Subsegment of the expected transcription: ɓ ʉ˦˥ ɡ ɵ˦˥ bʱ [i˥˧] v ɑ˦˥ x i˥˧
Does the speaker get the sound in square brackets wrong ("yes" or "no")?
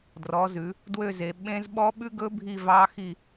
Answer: no